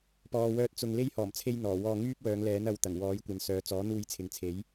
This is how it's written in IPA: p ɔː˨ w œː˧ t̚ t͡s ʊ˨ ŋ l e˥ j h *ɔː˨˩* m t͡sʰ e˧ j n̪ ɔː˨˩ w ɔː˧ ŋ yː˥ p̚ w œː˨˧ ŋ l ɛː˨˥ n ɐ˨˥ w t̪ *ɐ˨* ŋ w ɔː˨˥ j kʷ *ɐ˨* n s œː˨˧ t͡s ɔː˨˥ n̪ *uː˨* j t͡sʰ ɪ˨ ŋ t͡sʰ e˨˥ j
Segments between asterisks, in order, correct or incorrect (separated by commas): correct, incorrect, correct, incorrect